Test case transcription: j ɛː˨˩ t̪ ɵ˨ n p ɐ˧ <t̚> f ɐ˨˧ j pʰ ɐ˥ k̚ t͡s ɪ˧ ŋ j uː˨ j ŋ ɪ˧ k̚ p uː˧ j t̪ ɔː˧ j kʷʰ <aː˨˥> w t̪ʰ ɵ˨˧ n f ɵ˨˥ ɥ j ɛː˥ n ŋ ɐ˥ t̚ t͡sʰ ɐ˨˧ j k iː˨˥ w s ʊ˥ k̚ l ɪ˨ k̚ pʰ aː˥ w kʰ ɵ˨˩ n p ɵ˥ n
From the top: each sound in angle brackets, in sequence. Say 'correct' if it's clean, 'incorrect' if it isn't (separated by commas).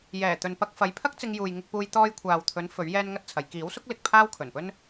incorrect, incorrect